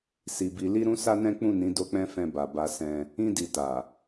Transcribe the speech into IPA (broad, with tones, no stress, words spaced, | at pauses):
si˨ bi˨li˧ ɾũ˦sa˦nɛ̃˦ k͡pũ˦˨nĩ˨˦ do˧k͡pɛ̃˧ fɛ̃˧ba˨ ba˧ sɛ̃˧ | ĩ˧di˨ta˨